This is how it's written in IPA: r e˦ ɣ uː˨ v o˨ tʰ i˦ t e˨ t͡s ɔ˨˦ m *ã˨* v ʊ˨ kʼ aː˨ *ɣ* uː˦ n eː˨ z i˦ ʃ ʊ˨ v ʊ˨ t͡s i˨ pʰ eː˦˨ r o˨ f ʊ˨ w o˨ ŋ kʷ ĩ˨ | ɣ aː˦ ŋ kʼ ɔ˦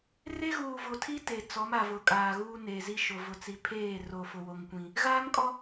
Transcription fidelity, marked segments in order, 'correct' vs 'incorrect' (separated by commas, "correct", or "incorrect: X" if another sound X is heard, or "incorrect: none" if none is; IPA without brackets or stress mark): incorrect: a˨, correct